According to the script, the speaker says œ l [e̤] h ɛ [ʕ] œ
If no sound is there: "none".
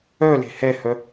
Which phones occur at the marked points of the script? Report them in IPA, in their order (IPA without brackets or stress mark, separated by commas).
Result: e̤, h